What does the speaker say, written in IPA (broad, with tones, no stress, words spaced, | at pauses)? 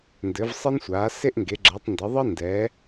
ndɘ˨˦vsˤɘ˥nsʷaː˨˦ se˥ʔŋɡe˨˦ɡ͡ǁɤ˨˦tˤndɘ˨˦ ðˤə˥ndɛ˨˦